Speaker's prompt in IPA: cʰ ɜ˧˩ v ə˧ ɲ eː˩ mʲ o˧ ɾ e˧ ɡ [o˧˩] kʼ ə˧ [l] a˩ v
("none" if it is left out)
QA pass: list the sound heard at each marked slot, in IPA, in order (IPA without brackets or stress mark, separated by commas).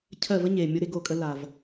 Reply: o˧˩, l